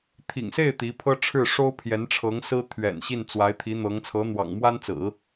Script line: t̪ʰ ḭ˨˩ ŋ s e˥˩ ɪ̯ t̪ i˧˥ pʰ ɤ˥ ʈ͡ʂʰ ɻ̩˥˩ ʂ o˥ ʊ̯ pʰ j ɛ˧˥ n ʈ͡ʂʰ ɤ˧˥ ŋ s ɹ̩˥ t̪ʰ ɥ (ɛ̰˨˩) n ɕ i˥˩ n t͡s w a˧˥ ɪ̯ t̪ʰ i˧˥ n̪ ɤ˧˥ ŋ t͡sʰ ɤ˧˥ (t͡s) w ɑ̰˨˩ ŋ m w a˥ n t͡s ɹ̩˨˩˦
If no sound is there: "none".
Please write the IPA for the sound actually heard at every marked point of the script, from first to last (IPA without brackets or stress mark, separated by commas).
ɛ̰˨˩, n̪